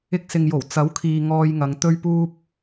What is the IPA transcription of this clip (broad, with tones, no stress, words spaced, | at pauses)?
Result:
ɪ˧k̚ sɪ˨ŋ jo˨˩w t͡sɐ˨˥wkʰiː˨ ŋɔː˧jŋɐ˨˧ŋ t̪ɵ˧ɥpuː˧p̚